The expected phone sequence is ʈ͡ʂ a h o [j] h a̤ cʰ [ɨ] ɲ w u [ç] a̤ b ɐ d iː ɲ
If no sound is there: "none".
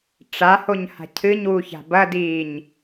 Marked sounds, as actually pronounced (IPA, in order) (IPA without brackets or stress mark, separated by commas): ɲ, ɨ, ç